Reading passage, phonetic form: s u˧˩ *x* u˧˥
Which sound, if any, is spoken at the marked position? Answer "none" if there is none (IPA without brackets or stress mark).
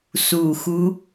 x